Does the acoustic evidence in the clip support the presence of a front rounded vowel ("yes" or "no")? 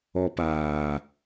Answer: no